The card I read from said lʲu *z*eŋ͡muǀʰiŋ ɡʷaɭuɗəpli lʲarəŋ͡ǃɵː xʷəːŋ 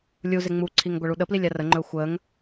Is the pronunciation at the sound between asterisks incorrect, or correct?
correct